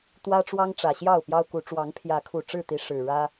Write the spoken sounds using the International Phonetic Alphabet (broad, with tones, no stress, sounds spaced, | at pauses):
t̪ w ä˦ ʈ͡ʂ w ɑ˦ ŋ ʈ͡ʂ ä˨˩ ɕ j ɑ˥˨ ʊ̯ p j ɑ˦ ʊ̯ k u˨˦ ʈ͡ʂ w ɑ˨˦ ŋ pʰ j ä˨˦ kʰ u˨˩ ʈ͡ʂ ɻ̩˥˨ t̪ i˨˦ ʂ ɻ̩˨˩ ɻ ä˦